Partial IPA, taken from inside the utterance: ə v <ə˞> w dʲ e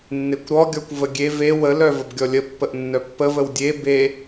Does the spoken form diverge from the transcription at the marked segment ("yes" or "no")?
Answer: yes